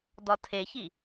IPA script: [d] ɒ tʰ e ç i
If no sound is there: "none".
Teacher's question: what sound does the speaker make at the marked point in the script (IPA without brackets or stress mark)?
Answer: d